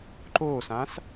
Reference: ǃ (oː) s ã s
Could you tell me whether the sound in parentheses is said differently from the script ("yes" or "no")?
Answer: no